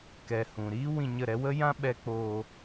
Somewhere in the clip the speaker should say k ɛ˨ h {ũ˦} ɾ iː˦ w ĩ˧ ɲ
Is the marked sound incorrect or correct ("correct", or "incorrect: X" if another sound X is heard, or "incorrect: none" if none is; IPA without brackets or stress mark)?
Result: incorrect: ũ˨